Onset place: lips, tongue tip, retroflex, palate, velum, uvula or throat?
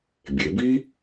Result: lips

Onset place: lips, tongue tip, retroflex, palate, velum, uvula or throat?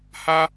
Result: throat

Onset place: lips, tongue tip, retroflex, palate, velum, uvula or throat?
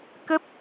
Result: velum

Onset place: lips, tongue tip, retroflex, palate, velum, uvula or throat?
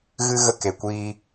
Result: velum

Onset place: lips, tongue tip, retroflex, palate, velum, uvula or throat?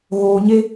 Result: velum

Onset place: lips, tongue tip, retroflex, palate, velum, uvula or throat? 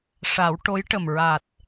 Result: retroflex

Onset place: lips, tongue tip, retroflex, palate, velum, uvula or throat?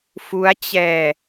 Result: lips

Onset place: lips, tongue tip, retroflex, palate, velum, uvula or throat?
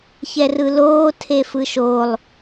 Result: palate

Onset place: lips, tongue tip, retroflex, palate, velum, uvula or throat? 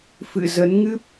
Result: lips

